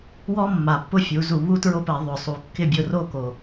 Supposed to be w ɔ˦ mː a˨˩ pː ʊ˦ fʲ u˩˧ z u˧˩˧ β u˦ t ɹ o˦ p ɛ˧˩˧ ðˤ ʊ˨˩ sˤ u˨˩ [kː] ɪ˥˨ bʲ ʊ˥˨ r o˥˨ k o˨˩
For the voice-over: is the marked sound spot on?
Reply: yes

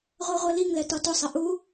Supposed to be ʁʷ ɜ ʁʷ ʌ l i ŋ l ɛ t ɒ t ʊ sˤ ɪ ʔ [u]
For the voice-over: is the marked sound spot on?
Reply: yes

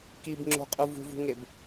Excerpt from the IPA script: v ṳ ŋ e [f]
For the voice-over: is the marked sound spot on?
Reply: no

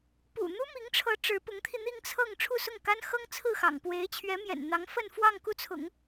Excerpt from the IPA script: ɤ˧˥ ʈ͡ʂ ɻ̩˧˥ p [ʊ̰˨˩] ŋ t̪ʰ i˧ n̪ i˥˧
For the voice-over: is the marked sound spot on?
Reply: no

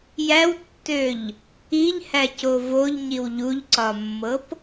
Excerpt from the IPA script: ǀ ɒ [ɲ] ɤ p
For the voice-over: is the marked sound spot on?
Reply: no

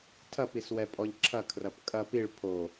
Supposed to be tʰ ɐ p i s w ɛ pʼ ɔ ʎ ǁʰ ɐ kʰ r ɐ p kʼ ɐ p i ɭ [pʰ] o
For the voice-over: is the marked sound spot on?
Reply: yes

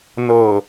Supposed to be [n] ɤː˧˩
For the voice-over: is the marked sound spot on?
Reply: yes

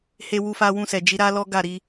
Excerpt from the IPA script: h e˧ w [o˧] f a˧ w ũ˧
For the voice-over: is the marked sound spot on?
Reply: no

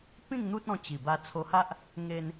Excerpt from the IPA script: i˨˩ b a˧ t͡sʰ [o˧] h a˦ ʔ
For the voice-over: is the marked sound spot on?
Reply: yes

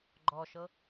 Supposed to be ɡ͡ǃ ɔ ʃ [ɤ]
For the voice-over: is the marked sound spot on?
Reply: yes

